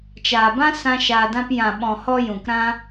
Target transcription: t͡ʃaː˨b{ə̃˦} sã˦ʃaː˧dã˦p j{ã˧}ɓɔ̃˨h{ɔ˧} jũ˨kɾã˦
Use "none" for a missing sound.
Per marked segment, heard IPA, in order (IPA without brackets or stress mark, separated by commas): ã˦, ã˨, ɔ˧